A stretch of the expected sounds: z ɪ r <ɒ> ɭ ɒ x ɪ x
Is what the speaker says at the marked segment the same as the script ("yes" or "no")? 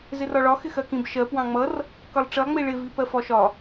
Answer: yes